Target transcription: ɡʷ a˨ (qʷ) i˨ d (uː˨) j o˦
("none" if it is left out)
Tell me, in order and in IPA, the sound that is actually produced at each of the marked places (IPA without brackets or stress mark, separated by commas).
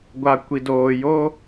kʷ, oː˨